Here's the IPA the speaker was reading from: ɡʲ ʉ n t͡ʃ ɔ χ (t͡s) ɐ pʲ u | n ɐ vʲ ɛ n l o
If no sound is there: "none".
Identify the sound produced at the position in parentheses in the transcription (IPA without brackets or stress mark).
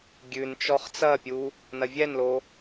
t͡s